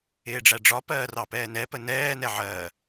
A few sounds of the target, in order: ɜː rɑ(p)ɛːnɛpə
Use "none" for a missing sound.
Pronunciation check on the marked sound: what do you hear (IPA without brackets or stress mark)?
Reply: p